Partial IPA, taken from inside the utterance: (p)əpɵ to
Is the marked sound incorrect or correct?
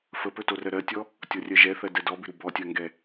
incorrect: f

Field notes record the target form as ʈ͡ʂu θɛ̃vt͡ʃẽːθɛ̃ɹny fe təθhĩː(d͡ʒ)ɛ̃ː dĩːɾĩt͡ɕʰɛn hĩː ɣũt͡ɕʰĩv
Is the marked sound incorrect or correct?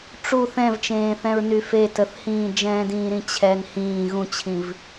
correct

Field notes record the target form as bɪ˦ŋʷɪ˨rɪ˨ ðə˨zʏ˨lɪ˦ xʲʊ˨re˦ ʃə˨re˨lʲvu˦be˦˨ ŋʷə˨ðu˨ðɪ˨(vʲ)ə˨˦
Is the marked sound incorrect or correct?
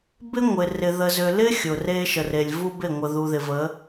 incorrect: v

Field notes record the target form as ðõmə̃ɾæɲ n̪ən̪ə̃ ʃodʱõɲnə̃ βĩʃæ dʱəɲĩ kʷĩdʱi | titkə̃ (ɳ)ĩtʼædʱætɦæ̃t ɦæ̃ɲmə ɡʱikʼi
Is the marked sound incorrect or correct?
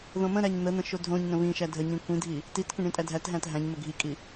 correct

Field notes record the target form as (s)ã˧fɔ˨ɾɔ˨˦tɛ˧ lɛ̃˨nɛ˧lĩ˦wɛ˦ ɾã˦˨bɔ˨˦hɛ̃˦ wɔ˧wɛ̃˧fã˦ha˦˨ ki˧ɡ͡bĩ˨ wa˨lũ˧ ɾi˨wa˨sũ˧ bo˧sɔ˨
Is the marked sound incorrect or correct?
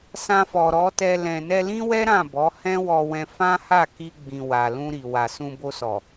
correct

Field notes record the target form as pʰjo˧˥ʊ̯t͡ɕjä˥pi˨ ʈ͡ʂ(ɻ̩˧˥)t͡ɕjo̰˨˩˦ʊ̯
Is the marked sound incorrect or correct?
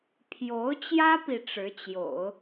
correct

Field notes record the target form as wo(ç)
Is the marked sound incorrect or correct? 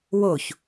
correct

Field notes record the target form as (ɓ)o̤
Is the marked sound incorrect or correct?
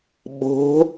correct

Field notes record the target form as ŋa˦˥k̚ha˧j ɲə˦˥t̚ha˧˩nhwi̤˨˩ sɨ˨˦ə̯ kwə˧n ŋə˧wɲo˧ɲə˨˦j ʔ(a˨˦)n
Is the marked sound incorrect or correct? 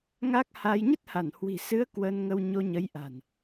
incorrect: a̤˨˩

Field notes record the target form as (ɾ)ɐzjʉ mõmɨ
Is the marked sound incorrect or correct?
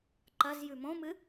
incorrect: ǃ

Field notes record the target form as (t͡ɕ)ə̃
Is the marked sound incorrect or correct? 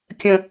incorrect: kʲ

